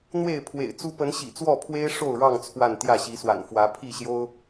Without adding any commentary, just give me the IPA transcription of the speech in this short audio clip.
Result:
n̪ w e˥˨ ɪ̯ pʰ w ḛ˨˩ ɪ̯ t͡s u˦ p ə˨˦ n ɕ ḭ˨˩ t͡s w ɔ˥˨ pʰ w e˦ ɪ̯ ʂ o˥˨ ʊ̯ ɻ ɑ˥˨ ŋ t͡sʰ w a˥˨ n t̪ j ä˥˨ ɕ i˨˦ s w a̰˨˩ n f w ä˨˦ pʰ i˥˨ ɕ j o˦ ʊ̯

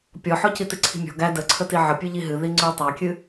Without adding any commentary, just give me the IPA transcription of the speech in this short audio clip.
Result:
pʲ ɔ ħ ɔ c i t ɨ ǀʰ i̤ mʲ ɔ̤ ɡ æ d ə ǀʰ ə t i ʕ ə pʲ ʉ ʎ i ɦ ɨ ð i ŋ͡ǀ ʉ tˤ æ kʲ ɨ

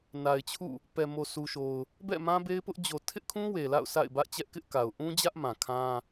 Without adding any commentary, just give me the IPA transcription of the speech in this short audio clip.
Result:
n a˨ ɪ̯ t͡ɕʰ ṵ˦˨ | p ɛ˨ m o˨ s u˨ ʃ o˨ ʊ̯ | b ɛ̰˦˨ m ã˦ b e˦ ɪ̯ p ʊ˦ ʔ d͡ʑ o˨ tʰ ɪ˦ ʔ kʰ ũ˦ w e˨ l a̰˦˨ ʊ̯ s a̰˦˨ ɪ̯ b ä˦ ʔ t͡ɕ ɛ˦ ʔ k ɪ˦ ʔ k a˨ ʊ̯ ʔ ũ˦ d͡ʑ ä˦ ʔ m ã˨ kʰ ã˦

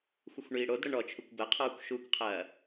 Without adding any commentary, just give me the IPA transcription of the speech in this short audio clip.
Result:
xʷ ə xʷ ɳ iː ɽ o d ɽ ə ɳ ɔ t͡ʃʰ u kʷ b ɐ qʰ ɔː kʷ ʃ u kʷ qʰ ɐː

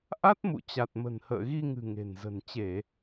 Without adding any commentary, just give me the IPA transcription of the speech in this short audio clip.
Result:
ʔ a˦˥ t̚ m ṵ˧˨ t͡ɕ a˨˩ t̚ m ə̤˨˩ n h ə̰ː˧˨ ɣ i˧ ŋ ɨ̤˨˩ ŋ e̤˨˩ n z ə̤˨˩ n t͡ɕ e˧˩˨

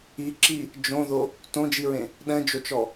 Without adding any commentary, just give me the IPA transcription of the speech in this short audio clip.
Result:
i ǁ i | d͡ʒ õ ð o | t õ d͡ʒ i ɹ ẽ | ɗ ɛ̃ d͡ʒ o t͡ʃ ɔ

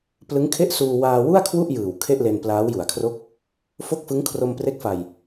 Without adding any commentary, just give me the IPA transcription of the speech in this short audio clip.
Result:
p l ɯ˦˥ ŋ kʰ e˥˩ ʔ s uː˧ w aː˧ w u˥˩ a̯ kʰ w u˥˩ ʔ j ɯː˨˩ w kʰ e˥˩ ʔ l e˧ n p l aː˦˥ w j u˨˩ a̯ kʰ r o˥˩ k̚ | f o˥˩ k̚ f ɯ˦˥ ŋ kʰ r o˧ m p r e˦˥ k̚ f a˧ j

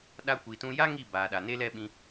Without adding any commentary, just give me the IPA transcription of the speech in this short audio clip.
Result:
ɗ a˦ kʷ i˧ t ũ˦ j a˦ ŋ i˦˨ b aː˨ ɗ a˨ n e˧ l ɛ˧ ɓ ĩ˧

